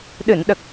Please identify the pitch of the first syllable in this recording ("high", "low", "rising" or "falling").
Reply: low